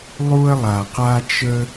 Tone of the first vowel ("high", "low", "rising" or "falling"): high